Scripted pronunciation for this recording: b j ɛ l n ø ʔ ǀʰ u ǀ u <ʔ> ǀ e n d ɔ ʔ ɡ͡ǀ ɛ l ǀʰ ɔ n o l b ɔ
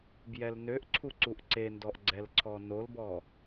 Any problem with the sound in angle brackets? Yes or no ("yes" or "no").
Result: no